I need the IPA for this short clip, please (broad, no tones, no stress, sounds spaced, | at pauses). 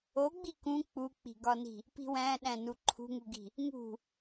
o ɡ͡b i k ũ k͡p u k͡p i̤ ɡ ɒ n i̤ | p i̤ w æ̃ ɗ æ̃ n u ǃʰ ṳ ŋ u ɡ i̤ | ŋ ṳ